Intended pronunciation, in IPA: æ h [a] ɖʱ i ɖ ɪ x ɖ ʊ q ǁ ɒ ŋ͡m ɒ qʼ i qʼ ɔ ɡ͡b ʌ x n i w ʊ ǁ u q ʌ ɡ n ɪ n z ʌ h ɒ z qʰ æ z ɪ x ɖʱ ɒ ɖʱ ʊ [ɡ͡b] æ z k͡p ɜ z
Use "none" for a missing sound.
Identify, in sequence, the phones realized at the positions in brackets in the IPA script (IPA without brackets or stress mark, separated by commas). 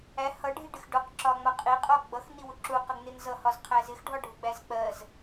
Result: ʌ, ɡ͡b